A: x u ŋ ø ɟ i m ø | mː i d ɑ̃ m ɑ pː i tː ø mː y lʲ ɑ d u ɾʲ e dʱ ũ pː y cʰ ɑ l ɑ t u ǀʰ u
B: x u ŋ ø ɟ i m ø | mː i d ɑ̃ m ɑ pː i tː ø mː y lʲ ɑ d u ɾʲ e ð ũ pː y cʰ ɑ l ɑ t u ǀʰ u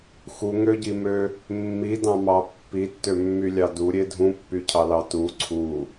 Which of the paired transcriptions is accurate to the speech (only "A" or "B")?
A